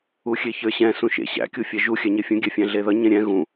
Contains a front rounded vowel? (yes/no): no